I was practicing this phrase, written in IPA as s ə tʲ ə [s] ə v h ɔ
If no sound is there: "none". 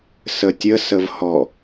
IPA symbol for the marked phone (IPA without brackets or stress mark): s